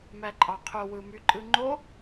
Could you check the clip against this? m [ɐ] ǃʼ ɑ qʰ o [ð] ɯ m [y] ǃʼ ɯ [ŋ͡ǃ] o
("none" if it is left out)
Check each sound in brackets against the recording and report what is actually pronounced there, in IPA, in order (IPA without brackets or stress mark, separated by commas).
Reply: æ, w, y, ŋ͡ǃ